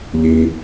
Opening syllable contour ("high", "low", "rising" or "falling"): low